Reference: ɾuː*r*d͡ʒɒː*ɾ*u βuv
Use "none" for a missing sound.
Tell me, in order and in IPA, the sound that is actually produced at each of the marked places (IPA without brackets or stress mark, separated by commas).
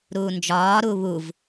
n, ɾ